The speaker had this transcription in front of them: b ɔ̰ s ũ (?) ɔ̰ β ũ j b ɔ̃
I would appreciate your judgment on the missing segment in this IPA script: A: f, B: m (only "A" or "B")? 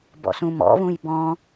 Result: B